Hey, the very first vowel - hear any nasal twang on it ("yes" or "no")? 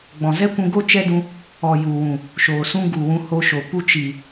yes